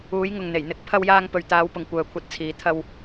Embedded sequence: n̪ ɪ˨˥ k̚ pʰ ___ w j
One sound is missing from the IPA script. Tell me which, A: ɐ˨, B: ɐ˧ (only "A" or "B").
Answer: B